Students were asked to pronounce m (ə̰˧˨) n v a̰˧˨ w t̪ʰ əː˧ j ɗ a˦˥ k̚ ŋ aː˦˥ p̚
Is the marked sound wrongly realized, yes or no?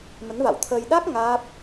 yes